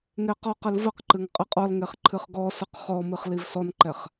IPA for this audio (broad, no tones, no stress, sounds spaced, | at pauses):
ŋ e q ɔ q ɨ l v ə q ǃ ɨ ŋ qʼ ɨ qʼ ɔ l ŋ e χ ǃʰ ɨ χ ɡ ɔ s ɨ q χ ɔ m ɨ χ l i v s ɔ n ǃ ɛ χ